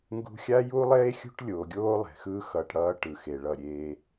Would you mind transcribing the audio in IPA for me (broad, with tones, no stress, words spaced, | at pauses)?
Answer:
ŋɡṳ˦ xʲa˦ju˦lˠeː˦ xʲṳ˦ʈlʲoː˨ɡʲoː˦ lˠe̤˨xɯː˦ xʌː˨ʈ ɽʌː˦ ʈɯ˨xe˨ɭʌ˦˨ɾʲeː˦